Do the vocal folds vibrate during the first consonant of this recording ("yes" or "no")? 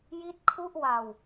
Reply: yes